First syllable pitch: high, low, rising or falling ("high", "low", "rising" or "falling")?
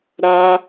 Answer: high